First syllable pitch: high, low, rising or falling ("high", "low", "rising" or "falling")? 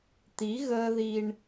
rising